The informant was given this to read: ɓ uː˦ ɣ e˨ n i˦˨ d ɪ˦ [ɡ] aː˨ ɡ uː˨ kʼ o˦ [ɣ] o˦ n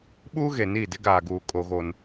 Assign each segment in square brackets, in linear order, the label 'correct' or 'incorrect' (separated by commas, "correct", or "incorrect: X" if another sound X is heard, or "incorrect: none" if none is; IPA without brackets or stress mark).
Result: correct, correct